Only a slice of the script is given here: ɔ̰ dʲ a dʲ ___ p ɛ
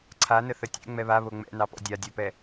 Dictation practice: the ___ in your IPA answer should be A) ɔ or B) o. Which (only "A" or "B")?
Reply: B